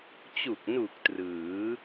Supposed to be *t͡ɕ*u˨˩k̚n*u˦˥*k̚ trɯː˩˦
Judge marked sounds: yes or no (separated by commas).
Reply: yes, no